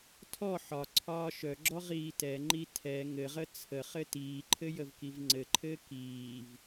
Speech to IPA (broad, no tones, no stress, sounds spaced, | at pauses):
tʰ ɔ ħ ɒ ǀʰ ɒː ʃ œ ɡ͡ǁ ɔ ʁ iː t ɛ ŋ͡ǃ i tʰ ɛ ŋ ɘ ʁ ə t͡sʰ ə χ ɘ t iː ǃʰ ɘ j ə v k i v ŋ͡ǀ ɘ ǃʰ ɘː k iː v